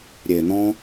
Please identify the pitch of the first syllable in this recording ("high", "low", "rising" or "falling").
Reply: low